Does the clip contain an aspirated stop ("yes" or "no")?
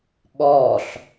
no